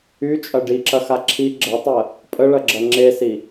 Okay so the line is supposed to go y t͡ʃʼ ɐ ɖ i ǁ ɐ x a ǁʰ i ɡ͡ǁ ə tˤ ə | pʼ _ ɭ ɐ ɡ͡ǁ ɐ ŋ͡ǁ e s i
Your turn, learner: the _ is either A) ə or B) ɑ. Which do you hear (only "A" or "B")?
A